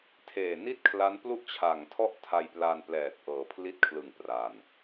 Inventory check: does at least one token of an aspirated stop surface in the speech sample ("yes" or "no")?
yes